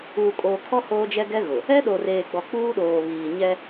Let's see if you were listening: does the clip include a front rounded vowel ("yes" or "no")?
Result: no